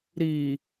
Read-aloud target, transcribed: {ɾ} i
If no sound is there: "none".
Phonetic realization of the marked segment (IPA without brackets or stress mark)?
ɾ